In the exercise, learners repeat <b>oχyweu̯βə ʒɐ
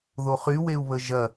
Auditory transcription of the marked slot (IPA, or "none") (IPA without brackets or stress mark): ð